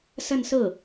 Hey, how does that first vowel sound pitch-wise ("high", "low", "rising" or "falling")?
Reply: falling